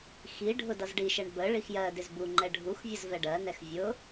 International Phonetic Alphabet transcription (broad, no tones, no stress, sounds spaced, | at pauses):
x i ɖʱ ʊ d ʌ z ɖ i ʃ ɛ ɳ b ə ɭ i x j ɜ d ɪ z b u ŋ͡ǃ ɛ ɖʱ u x vʲ ə z v ɛ ɖ ɜ n ɛ x vʲ ʊ